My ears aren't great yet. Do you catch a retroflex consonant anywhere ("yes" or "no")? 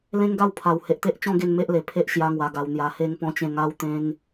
no